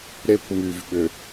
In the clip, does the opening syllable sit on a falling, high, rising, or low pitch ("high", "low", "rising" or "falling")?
high